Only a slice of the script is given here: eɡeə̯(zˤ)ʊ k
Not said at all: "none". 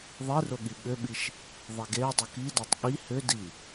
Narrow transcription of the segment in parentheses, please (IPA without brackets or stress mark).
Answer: dˤ